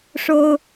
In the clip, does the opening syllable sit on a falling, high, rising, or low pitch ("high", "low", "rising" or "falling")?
high